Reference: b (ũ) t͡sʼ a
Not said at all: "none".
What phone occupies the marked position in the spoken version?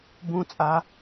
ũ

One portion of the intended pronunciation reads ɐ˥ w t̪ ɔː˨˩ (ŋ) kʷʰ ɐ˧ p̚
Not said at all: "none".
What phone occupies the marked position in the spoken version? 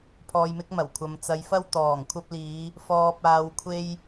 ŋ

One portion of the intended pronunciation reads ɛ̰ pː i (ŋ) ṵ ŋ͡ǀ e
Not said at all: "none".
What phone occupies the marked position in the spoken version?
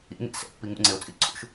ŋ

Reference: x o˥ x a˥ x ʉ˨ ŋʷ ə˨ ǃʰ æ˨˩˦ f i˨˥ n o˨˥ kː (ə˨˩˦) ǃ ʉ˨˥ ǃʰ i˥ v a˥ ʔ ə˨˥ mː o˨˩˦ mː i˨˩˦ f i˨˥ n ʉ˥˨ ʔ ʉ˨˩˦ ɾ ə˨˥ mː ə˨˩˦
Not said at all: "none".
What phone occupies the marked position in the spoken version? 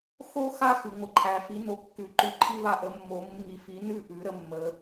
ʉ˨˩˦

